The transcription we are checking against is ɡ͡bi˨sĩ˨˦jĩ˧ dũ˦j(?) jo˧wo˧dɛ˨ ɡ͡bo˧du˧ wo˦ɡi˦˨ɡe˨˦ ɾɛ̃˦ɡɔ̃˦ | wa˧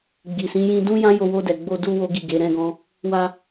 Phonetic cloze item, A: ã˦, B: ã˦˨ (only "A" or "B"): A